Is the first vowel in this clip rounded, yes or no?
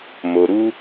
yes